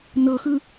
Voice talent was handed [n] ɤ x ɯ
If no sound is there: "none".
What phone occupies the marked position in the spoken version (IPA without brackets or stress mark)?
n